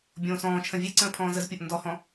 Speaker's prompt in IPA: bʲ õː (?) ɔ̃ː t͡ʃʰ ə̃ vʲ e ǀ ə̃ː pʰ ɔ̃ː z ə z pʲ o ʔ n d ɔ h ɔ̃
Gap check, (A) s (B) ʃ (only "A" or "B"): A